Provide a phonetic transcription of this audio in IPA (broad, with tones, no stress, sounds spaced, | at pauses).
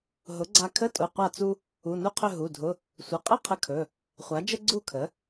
ɦ ʊ˩˥ ɡ͡ǀ a˧ kʰ ə˧˥˧ tʼ ʊ˩˧˩ qʷ a˥˨ t͡s u˥ | u˩˧˩ n u˥˨ qʰ ɵ˥˨ ɦ u˩˧˩ dʱ ʊ˧˥˧ | sʷ ə˩˧˩ qʼ ə˥˨ qʰ ə˧ kʰ ɵ˩˧˩ | χʷ a˩˥ d͡ʒ ə˥ ɡ͡ǀ u˥˨ kʰ ə˩˥